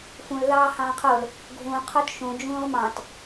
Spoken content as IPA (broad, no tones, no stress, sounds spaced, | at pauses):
f ũ l ð ɑː h ɑ̃ː qʰ o l | ɡʱ ũ qʰ o t ʃ ũ d͡ʒ ũː ʁ m ɑ̃ t